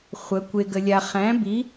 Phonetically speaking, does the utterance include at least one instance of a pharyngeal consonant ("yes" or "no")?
no